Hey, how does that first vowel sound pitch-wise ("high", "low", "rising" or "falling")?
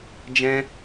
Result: high